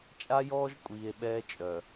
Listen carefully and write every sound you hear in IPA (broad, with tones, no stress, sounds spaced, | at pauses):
t͡ʃʼ a˦ j ɔː˦ ʒ kʷʼ iː˨ e̯ ɓ ɛː˦ t͡ʃʼ œ˨